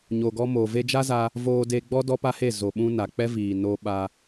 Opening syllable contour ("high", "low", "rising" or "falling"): low